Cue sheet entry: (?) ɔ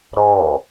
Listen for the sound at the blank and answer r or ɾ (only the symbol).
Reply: ɾ